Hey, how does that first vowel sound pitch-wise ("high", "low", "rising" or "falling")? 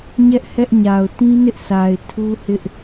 high